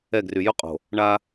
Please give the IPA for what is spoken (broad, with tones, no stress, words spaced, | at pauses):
ɛ˦˨ ɡry˨ jʊ˦ qʼo̤˨ | ɳa˦